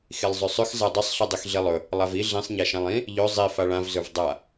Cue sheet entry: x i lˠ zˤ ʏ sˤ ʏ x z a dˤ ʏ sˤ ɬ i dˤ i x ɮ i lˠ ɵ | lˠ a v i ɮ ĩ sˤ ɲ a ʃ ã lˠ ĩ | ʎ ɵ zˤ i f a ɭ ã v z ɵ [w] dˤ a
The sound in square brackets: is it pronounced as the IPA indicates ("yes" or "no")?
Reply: no